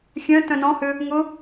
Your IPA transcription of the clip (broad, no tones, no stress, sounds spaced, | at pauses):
xʲ œ̃ t œ̃ n ɔ̃ h ʏ | ŋ ʊ